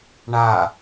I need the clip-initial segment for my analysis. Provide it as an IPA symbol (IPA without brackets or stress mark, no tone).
ɳ